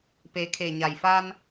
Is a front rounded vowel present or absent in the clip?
absent